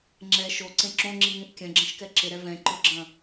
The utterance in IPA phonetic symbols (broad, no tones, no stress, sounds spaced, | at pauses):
ŋ͡ǁ ɛ ʃ o ǀ ẽ ǁ õ ŋ͡ǁ i ŋ ĩ ʔ kʲ ɐ̃ ɡ͡ǁ ɐ̃ ʃ k ɛ ǁ ɪ ɾ ɛ v ɛ̃ ǃ ʊ ɡ͡ǁ ɐ̃